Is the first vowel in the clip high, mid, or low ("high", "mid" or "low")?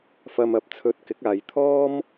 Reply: low